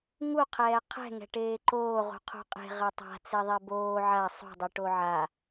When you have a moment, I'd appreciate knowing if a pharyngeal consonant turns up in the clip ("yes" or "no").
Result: yes